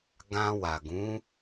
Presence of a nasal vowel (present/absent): present